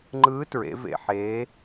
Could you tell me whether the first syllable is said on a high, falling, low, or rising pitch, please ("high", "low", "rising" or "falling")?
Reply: rising